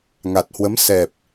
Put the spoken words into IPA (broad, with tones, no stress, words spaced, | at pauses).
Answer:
ŋa˨˩t̚ hwə˨˦m sɛ˨˩p̚